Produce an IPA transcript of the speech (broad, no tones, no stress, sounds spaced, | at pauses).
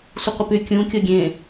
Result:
sʷ ə qʷ œ p y kʲ ũ kʲ o ɡʲ ẽ